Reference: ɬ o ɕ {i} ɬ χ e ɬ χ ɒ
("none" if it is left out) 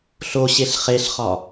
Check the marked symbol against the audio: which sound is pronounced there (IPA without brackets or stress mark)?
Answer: e